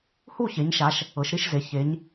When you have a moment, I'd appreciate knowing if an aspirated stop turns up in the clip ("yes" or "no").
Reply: no